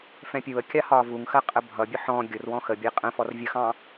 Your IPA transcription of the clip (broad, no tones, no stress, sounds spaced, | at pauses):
f ɛ̃ pʲ u ə̯ kʲ ɑ h ɒː v u ŋ x ɜ qʼ ə bʱ ʌ bʲ ʊ ħ ɔ̃ ɡʲ ʊ r w ɔ̃ x ə bʲ ɛ qʼ ə̃ f ɔ r vʲ ə x ɑ̃